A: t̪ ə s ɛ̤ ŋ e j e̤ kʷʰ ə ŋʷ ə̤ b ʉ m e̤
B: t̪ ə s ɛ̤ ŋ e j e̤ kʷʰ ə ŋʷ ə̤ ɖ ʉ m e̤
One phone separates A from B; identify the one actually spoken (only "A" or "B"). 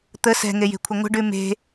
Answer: B